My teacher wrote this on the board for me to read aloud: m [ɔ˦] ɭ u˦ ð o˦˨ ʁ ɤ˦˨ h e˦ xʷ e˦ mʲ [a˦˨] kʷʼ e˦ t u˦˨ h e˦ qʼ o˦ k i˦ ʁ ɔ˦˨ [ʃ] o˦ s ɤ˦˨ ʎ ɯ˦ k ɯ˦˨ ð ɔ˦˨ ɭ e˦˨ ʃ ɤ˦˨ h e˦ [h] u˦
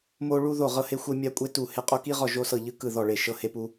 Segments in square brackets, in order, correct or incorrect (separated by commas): incorrect, incorrect, incorrect, incorrect